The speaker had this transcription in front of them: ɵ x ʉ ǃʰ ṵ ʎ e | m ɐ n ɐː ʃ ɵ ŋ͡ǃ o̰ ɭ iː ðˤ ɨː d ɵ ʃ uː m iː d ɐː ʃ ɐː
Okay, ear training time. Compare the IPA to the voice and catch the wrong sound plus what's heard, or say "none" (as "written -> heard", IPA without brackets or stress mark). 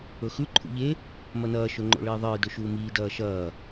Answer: none